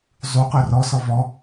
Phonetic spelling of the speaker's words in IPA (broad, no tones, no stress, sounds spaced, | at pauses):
zˤ u q œ r ɔ s ɔ v ɔ